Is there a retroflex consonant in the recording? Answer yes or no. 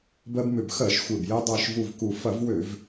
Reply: no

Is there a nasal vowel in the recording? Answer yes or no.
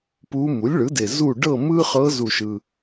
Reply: no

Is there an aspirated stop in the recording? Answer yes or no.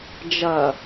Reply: no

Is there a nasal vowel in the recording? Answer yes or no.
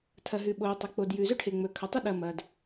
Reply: no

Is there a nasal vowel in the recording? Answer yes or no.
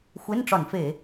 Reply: no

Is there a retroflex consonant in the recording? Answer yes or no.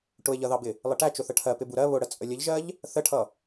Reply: yes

